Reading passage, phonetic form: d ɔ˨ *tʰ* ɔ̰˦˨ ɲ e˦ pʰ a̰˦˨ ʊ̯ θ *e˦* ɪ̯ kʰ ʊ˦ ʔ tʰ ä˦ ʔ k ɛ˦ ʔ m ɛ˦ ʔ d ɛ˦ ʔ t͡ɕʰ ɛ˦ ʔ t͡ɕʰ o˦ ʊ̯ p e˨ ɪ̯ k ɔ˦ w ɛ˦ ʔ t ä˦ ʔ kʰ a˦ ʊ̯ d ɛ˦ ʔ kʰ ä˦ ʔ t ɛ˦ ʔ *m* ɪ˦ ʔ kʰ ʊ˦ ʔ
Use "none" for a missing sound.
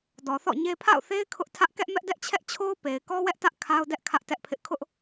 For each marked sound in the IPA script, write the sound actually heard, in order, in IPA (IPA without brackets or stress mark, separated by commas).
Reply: θ, e˦, pʰ